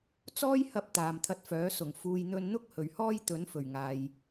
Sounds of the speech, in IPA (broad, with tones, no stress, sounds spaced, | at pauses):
t͡s ɔː˥ j h ɐ˧ p̚ t̪ aː˨ m t̪ʰ ɐ˧ t̚ f œː˨˥ s ʊ˨˩ ŋ f uː˨ j n̪ ɵ˧ n n̪ ʊ˥ k̚ h ɵ˨˩ ɥ h ɔː˥ j t̪ ɵ˨˥ n f ɵ˨˩ ɥ ŋ aː˨ j